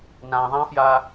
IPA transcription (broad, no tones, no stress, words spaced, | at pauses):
nãðˤãfja